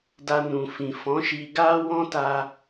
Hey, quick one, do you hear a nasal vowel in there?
yes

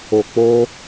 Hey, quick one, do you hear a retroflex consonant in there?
no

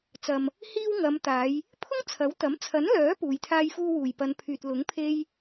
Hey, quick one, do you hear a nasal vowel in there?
no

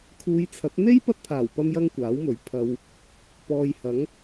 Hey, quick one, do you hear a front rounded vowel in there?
no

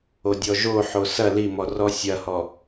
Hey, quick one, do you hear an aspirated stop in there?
no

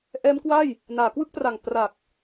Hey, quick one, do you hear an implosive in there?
no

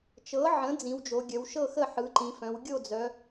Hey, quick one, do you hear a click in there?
yes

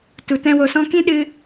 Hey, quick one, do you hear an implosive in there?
yes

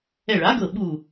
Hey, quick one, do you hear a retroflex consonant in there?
yes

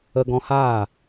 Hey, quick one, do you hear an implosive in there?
no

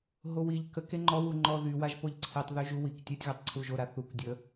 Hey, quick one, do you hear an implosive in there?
no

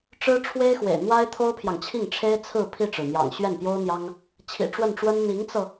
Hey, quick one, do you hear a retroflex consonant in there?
yes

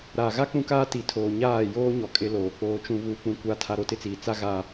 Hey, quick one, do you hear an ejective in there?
yes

